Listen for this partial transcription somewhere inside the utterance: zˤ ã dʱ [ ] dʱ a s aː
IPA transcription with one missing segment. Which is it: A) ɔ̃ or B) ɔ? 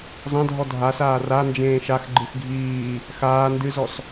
B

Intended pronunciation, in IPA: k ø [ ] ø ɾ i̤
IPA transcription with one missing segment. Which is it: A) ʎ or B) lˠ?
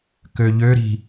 A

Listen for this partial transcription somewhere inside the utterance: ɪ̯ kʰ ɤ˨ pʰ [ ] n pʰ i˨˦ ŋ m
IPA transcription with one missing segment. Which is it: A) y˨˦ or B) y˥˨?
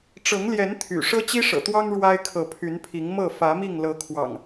A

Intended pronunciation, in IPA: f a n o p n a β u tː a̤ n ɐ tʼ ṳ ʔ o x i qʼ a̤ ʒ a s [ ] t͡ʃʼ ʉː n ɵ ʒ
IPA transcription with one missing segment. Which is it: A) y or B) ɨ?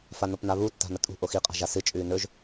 B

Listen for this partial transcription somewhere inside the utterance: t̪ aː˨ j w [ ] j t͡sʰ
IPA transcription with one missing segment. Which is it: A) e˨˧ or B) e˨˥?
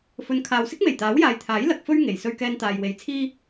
A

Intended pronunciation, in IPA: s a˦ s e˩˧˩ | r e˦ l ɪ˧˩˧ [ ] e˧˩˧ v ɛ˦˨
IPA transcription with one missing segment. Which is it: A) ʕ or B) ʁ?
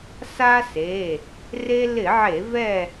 A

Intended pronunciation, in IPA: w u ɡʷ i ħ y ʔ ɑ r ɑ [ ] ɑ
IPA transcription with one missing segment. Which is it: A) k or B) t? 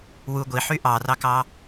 A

